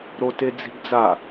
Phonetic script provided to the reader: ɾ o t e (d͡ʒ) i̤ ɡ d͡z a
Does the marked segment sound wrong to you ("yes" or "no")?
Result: yes